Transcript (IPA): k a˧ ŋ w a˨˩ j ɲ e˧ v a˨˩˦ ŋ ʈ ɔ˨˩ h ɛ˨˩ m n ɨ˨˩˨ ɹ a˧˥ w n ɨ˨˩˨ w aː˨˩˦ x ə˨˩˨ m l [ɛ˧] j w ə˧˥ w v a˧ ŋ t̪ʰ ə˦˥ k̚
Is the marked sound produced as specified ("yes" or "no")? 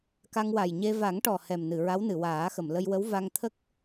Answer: no